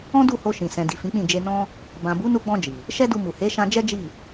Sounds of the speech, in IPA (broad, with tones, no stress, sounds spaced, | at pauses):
ɔ̃˦ d u˦˨ h o˧ ʃ ĩ˨ s ɛ̃˨ d i˨ f ĩ˨˦ k͡p ĩ˦˨ d͡ʒ e˧ n ɔ̃˦ | b ã˨ b u˨˦ n u˧ ɡ͡b ɔ̃˧ d͡ʒ i˨ | ʃ ɛ˦ d u˧ m u˨ h e˨˦ ʃ ã˧ d͡ʒ ɛ˦ d͡ʒ i˦˨